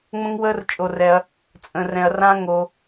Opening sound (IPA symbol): ŋ͡m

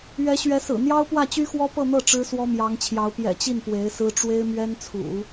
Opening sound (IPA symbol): ɥ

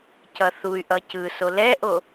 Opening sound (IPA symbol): c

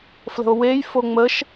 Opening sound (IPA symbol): f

